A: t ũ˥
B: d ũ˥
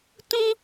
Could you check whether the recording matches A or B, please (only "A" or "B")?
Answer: A